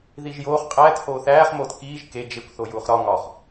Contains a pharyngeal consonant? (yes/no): no